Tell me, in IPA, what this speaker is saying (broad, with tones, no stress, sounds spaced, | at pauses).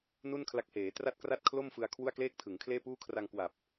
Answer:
n u˥˩ n kʰ l a˦˥ k̚ h eː˩˦ t r a˥˩ t̚ k r a˥˩ t̚ kʰ l o˥˩ m f ɯ˧ a̯ kʰ w u˥˩ a̯ k l eː˥˩ k̚ tʰ ɯ˩˦ ŋ kʰ l eː˥˩ p uː˥˩ kʰ r a˧ ŋ k w a˨˩ p̚